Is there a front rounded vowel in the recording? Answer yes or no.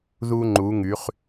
yes